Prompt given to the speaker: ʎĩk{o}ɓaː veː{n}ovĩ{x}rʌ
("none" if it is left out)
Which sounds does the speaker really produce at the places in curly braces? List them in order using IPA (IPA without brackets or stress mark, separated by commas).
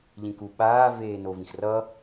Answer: u, n, x